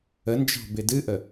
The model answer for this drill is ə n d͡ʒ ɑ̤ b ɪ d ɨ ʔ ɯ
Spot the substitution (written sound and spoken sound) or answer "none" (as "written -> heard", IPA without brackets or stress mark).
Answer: ɯ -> ə